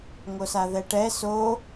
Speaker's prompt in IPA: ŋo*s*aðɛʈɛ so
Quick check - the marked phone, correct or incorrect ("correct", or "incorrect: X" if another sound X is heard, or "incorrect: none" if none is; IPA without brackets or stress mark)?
correct